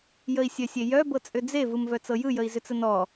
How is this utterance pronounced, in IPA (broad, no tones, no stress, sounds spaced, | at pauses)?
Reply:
j ə i̯ sʲ œ sʲ e j œ b ɤ t͡sʼ ʏ d͡z e v ɯ m v œ t͡s ɤ j ɯ j ə i̯ z ʏ t͡s ə n ɔ